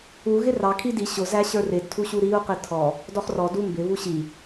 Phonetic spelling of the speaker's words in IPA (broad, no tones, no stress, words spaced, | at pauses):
u ɣɪrɑ kʰidi ɕʊzæɕə˞ rɪdtʰuɕu ɾiu̯qi tʰɔ | dɔχrɔ dumbɪβu ɕi